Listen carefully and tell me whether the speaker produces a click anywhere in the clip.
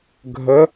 no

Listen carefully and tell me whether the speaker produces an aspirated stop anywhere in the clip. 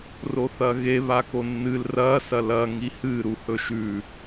no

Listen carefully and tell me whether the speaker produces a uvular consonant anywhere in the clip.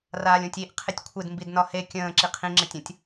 yes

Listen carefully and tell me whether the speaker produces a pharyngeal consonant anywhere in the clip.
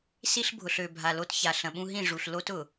no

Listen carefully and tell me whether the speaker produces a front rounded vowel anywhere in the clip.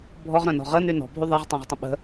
yes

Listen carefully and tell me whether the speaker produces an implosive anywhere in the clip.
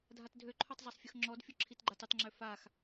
no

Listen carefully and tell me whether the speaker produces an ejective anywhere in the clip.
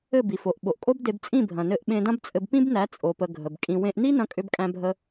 yes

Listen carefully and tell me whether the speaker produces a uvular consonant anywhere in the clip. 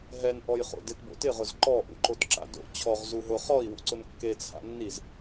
yes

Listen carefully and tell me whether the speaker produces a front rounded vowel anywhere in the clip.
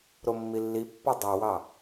no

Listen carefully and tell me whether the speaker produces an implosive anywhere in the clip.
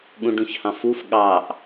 yes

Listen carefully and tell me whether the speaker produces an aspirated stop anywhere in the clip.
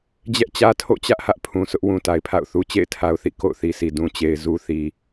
yes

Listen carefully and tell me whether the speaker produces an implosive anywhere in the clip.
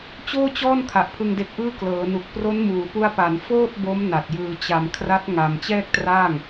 no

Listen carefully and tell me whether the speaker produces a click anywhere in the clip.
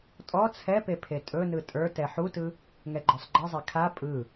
yes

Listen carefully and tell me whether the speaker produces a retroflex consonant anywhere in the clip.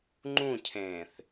no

